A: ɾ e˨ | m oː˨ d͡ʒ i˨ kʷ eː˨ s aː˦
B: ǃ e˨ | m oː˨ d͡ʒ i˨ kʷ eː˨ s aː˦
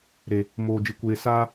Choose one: A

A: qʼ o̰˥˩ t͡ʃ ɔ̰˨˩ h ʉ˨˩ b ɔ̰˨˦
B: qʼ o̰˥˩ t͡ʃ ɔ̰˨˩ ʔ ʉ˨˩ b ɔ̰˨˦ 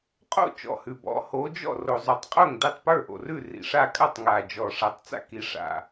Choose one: A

